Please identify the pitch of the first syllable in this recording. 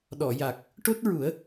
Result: low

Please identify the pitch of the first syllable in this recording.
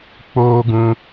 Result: high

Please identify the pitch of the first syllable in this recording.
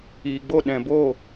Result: low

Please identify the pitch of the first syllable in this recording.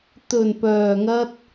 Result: low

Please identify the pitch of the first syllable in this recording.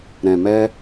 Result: low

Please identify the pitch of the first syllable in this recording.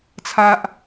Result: high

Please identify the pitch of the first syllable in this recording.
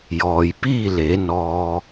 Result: low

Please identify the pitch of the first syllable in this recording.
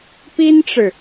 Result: high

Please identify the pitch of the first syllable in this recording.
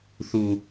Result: low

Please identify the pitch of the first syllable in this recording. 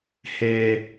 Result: high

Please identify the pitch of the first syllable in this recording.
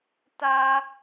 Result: high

